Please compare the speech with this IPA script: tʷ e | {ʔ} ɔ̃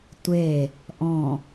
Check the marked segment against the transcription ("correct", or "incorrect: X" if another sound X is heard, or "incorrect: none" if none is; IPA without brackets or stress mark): correct